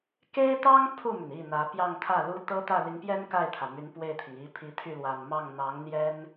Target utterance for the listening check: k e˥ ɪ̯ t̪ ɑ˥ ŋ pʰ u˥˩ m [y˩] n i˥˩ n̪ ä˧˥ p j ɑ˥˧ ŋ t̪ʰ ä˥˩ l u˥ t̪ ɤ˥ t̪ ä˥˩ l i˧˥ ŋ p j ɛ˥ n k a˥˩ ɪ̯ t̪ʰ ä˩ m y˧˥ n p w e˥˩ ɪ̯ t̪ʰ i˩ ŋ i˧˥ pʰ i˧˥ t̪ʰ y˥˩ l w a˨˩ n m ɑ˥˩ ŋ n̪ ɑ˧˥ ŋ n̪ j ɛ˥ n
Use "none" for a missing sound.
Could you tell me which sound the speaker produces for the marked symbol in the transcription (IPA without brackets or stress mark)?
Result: y˩